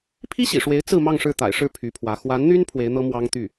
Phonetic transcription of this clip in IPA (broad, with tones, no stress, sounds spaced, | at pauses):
pʰ i˥ ɕ ḭ˨˩ ʂ w e˧˥ ɪ̯ t͡s ɹ̩˥˧ m ɑ˥˧ ŋ ʂ ɻ̩˥˩ t̪ a̰˨˩ ɪ̯ ʂ ɻ̩˥˩ pʰ y˧˥ pʰ w ä˧˥ x w a˧˥ n n̪ y˥ n pʰ w e˧˥ ɪ̯ n̪ ɤ˥ m w ɑ˥ ŋ t̪ y˥˩